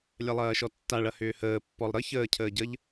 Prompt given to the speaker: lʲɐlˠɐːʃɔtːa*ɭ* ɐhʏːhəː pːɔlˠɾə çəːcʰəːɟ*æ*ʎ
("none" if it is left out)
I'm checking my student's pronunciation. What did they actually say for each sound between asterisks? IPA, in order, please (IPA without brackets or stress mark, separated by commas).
ɭ, ə